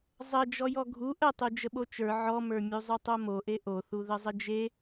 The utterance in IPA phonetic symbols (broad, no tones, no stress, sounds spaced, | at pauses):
zˤ ə d͡ʒ ɔ j ɔ ɡʱ u ʔ ə tˤ u d͡ʒ ə ɓ o t͡ʃ ə˞ ʕ ɔ m ə˞ mʲ u zˤ u tˤ o m o ʔ e ʔ o θ u ð ə zˤ ə d͡ʒ e